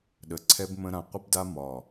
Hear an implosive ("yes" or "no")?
yes